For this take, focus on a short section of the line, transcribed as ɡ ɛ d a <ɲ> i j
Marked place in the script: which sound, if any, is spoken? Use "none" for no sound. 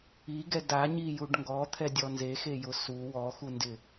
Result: ɲ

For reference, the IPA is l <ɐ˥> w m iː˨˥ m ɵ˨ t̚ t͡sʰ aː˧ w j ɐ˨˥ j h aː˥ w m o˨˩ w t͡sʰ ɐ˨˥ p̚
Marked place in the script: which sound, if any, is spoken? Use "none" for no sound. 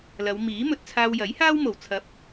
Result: ɐ˨˧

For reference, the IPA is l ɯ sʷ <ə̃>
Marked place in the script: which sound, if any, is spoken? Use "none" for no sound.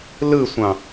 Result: ɑ̃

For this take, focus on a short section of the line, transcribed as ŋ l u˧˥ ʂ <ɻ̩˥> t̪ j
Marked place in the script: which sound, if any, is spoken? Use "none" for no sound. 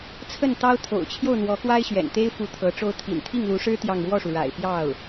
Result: ɻ̩˥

